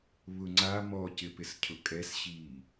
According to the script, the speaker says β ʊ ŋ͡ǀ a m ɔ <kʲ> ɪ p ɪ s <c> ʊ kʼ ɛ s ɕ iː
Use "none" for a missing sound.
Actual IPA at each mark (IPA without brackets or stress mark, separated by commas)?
c, cʰ